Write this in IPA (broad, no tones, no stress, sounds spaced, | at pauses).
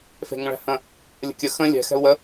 f e̤ ŋ ə̃ ɭ æ̤ h ə̃ | lʲ ə̤ kʲ ə x ə̃ lʲ ɛ̤ x ɛ̤ u̯ w ə